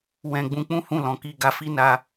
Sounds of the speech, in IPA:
w ɛ̃˧ ɡ͡b ũ˧ k͡p ũ˦ h ũ˦˨ l ɔ̃˨˦ k i˦˨ ɡ a˧ f i˦ n a˧

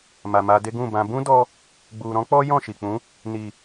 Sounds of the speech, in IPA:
m a˨ m a˧ d e˦ ɡ ũ˦˨ b ã˧ b ũ˦ d ɔ˧ | ɡ͡b u˨ ɾ ɔ̃˨˦ k͡p ɔ˦ j ɔ̃˦˨ ʃ i˨ k͡p ũ˨˦ | n i˨

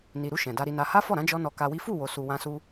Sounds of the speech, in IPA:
n i˨ ɾ u˧ ʃ ɛ̃˨ d a˧ ɾ i˧ n a˧ h a˦ f ɔ˦˨ ɾ ã˨˦ d͡ʒ ɔ˦ n ɔ˧ k a˧ w i˦ f u˦˨ w o˨ s u˨ w ã˧ s u˧

